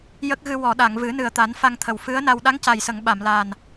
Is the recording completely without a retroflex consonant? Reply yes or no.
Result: yes